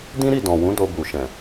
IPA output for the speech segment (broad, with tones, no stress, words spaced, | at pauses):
dĩ˦ɾi˦˨dɔ̃˨wũ˨˦ do˧bu˨ʃɛ̃˨